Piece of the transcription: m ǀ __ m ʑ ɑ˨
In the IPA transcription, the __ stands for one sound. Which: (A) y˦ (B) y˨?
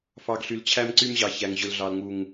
A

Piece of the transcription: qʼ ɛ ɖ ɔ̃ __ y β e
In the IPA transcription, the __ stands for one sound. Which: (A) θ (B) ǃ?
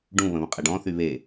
A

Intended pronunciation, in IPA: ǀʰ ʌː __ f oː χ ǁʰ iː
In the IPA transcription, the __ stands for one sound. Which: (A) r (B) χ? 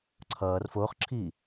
A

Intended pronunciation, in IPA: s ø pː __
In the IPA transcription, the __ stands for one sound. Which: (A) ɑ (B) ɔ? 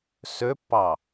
A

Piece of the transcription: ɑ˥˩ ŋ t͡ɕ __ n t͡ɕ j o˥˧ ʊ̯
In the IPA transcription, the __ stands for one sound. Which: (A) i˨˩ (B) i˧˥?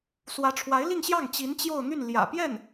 B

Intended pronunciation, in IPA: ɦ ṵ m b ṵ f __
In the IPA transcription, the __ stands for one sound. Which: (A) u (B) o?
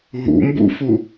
A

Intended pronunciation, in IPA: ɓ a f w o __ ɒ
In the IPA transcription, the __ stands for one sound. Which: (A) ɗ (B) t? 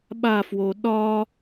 A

